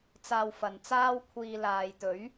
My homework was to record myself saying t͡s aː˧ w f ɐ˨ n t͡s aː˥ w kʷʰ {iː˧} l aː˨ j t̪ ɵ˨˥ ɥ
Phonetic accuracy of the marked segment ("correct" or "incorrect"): correct